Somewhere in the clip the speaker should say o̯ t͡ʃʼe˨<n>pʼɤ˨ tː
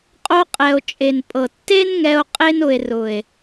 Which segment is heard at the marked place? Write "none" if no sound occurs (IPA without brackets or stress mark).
n